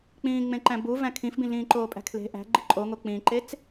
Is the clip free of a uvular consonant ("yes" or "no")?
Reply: yes